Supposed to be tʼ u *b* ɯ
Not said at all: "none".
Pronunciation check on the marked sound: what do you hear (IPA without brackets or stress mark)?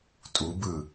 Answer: b